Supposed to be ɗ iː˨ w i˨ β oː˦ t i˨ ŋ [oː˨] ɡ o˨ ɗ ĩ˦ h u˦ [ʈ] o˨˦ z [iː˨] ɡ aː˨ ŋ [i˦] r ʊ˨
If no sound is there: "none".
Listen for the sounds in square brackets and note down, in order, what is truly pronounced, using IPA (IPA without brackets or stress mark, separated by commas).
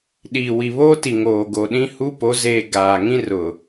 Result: oː˨, p, eː˨, ĩ˦